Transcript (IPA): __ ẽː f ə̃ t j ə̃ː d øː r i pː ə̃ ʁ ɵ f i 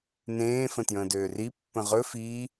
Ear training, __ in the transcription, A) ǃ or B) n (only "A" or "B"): B